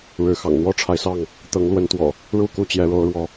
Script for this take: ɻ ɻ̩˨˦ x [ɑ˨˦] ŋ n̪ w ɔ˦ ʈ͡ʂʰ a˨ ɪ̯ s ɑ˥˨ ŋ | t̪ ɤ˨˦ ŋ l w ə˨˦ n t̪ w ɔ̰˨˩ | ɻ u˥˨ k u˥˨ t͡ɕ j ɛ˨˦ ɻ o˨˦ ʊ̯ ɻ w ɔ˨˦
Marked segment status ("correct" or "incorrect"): incorrect